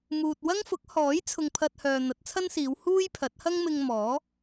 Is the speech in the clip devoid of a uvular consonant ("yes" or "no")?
yes